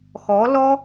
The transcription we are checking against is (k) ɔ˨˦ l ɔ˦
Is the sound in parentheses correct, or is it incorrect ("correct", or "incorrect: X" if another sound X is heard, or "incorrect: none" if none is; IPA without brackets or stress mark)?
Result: incorrect: x